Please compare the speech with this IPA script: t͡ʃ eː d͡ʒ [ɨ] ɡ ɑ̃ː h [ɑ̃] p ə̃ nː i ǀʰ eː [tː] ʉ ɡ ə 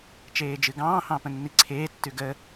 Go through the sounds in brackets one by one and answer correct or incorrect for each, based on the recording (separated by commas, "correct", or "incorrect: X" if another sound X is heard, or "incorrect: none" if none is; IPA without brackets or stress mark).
correct, correct, correct